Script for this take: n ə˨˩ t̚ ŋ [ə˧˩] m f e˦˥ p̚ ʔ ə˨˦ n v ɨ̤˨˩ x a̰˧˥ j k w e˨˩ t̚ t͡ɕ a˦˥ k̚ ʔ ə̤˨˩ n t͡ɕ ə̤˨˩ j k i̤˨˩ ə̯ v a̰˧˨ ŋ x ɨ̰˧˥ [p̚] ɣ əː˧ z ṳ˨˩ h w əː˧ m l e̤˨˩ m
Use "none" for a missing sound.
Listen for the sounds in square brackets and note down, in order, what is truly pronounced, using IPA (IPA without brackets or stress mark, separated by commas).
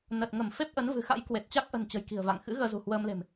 ə˧˩, none